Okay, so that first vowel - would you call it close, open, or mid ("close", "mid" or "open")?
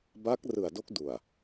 open